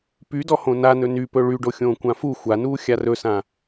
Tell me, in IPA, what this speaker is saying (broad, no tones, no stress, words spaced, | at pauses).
pydɔ hõnanɵ nypɵ ɭyɖoxʲõː kʷãfu xʷanuː xʲarɵsã